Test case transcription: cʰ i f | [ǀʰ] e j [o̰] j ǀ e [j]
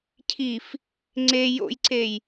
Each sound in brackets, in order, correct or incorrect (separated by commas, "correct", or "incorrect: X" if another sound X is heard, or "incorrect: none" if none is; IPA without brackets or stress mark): incorrect: ŋ͡ǀ, correct, correct